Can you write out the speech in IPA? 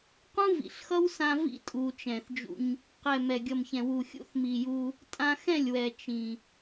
q ũ˦ v ḭ˨ ɬ x ʌ˦ w s ã˧ v ḭ˦ tʼ u˨ t͡ʃ ɛ̃˨ θ d͡ʒ ṵ˧ ɲ | q ɛ˨ m ɛ˨ ɡʲ ʌ˨ m ç ɛ̃˨ w u˨ xʲ ṵ˦ θ m i˨ j u˧ | tʼ ã˧ x ɛ̃˦˨ lʲ w ɛ˨ t͡ʃ ĩ˨

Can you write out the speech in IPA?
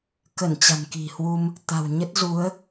k ə˧˩ n t͡ɕ a̤˨˩ n k i̤˨˩ h w u˧ m | t̪ a̤˨˩ w ɲ ə˦˥ t̚ z u˨˦ ə̯

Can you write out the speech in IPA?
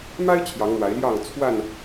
m a˦ ɪ̯ t͡ɕʰ j ɑ˨˦ ŋ n̪ w a˨˦ ɪ̯ l j ɑ˥˨ ŋ t͡sʰ w a˥˨ n

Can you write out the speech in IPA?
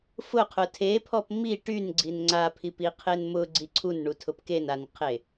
f ʊ qʰ ʊ tʰ e pʰ ɔ p m i ʈ y n ɡ͡ǀ i n ŋ͡ǀ a pʰ i p i qʰ e n m ʊ ɡ͡ǀ i ǀʰ u n ɳ u tʰ ʊ p k e n a n qʰ e

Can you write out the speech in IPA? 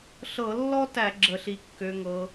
ɬ ɤ˧˩˧ lː ɔ˥ t æ˧˩˧ ɡ͡ǁ ə˧˩˧ ɬ i˨˦ kː ø˨˦ ŋ ɤ˨˦

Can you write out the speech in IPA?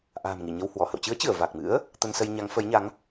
ʔ a̤ː˨˩ m ŋ i˧˩ ɲ ə˧ w h w ɔ˧˩ h ə̰˧˨ w t͡ɕ ɨ˨˦ ə̯ t͡ɕ ɨ˧˩ ə̯ v a˨˩ k̚ m ɨ̰˧˥ ə̯ | t̪ ə˧ n s ə˧ j ɲ a˨˦ ŋ f ə˨˦ j ɲ a˨˦ ŋ

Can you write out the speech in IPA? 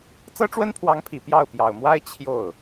t͡s ɤ˥ ʈ͡ʂ w ə˥ n pʰ w ɑ˧˥ ŋ pʰ i˨˩ p j ɑ˥˩ ʊ̯ p j ɑ˨˩ ʊ̯ m w a˥ ɪ̯ t͡ɕʰ j o˥˩ ʊ̯

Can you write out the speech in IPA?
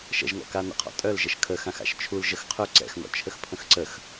ʃ ə̰ ʒ ŋ ɔ̰ k a n ə̰ qʰ ɔ̰ tʼ œ l ʒ ə ʃ kʰ ə x ã x a̰ ʃ t͡ʃʰ u l ʒ ə x qʰ œ ǀ ɛ̰ x n ɔ̰ t͡ʃʰ ə x pʰ ə̃ x ǀ ə x

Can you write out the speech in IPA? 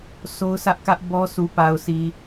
s o˦ ʊ̯ s ä˦ ʔ k ä˦ ʔ b ɔ˦ s u˨ p a˨ ʊ̯ s i˨

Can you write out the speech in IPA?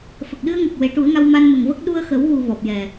f ə˨˩ k̚ ɗ ɨ˧ ə̯ ŋ ə˨˩ k̚ w e˨˩˦ ʈ u˨˩˦ ə̯ ŋ a˧ w m a˧ n m ə˨˩ ŋ v ə˦˥ k̚ ɗ u˧ ə̯ x ə˨˩˦ w ɣ u˨˩ v ɔ˨˩ p̚ j ɛ˨˩

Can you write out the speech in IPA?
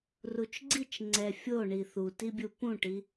r u t͡ʃ ɡ͡ǀ i t͡ʃ ŋ͡ǀ ɛ fʲ o ɳ i θ u t i bʲ u p ũ ʈ i

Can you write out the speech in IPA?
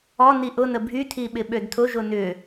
ɔ n i ʔ ʊ n ə bʱ y tʰ i ɓ ɪ ɓ ø d tʰ ʊ ʒ ʊ n ʏ

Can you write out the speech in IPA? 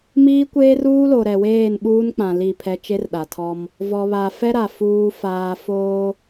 m iː˦ kʷ eː˦ r uː˦ l o˨ ɾ ɛ˨ w eː˦˨ n ɓ uː˦ n k͡p ã˨ l i˦˨ pʰ ɛ˦ t͡ʃ e˦ r ɗ a˨ tʰ ɔ˦ m | v ɔ˨ β a˨ f ɛ˦ ɾ a˨ f uː˦ f aː˦ f oː˦

